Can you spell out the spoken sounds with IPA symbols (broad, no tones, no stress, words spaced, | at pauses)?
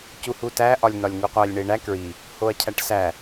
cuhutæ ʔɒlʲnɒlʲŋuqʷælʲ ɳeɳæ kɹi | hoɐ̯cʰæʈsæ